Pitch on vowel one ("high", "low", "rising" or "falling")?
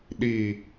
low